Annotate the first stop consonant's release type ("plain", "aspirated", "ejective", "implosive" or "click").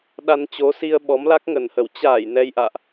implosive